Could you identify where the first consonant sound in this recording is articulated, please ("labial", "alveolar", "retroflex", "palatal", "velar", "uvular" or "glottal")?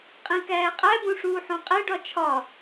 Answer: uvular